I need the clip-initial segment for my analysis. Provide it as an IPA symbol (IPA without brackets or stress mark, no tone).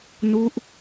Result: n